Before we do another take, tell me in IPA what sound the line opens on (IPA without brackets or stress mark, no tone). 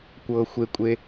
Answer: kʷ